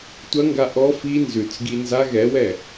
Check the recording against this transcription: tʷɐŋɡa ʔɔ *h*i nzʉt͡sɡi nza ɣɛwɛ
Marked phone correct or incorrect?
incorrect: f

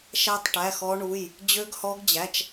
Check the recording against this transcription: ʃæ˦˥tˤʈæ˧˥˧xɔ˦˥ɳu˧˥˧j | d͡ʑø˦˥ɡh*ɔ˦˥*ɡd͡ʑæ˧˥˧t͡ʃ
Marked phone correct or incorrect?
correct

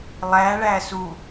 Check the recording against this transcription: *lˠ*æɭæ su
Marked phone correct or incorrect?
correct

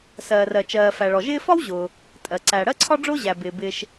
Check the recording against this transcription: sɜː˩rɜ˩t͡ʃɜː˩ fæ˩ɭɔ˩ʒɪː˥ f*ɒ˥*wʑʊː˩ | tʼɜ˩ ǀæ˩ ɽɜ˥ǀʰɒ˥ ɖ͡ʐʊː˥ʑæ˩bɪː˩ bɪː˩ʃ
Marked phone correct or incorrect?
correct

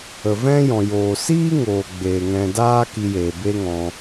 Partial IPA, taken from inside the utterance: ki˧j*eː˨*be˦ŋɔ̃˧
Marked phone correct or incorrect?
correct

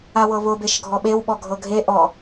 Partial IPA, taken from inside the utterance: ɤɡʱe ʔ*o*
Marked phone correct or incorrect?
incorrect: ɔ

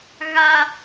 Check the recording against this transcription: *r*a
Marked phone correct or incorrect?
incorrect: ɣ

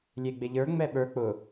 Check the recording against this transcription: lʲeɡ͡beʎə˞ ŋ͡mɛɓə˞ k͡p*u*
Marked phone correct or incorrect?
incorrect: ʊ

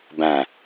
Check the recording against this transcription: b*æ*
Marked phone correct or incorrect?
incorrect: æ̃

